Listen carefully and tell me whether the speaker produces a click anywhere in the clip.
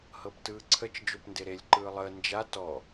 yes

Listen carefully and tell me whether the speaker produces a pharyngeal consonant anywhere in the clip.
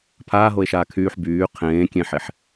yes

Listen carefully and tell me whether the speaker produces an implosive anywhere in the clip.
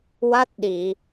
yes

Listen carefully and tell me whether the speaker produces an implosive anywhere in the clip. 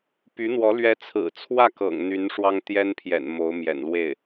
no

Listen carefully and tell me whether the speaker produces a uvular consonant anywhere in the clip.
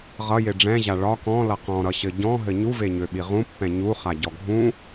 yes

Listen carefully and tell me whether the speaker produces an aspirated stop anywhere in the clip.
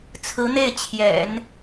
yes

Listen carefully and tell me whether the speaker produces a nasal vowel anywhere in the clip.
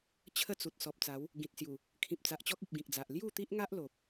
yes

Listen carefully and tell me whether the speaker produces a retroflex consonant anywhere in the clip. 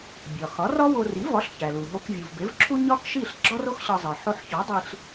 no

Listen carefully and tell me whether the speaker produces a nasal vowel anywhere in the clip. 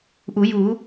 no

